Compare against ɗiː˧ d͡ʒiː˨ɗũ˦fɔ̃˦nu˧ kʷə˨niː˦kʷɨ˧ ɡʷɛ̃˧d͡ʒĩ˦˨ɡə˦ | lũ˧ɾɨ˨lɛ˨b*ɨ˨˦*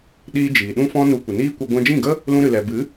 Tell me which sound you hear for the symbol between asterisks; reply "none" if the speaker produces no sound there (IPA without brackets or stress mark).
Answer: ɨ˨˦